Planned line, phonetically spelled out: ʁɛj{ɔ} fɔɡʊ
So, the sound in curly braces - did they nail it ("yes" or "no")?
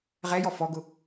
yes